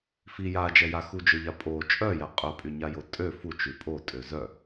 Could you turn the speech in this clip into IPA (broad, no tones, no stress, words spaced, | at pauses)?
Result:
fi jad͡ʒɛja xud͡ʒøʎa pʼo t͡ʃʼœja qʼœpʼyɲajo tʼø fut͡ʃy pʼotʼø zœ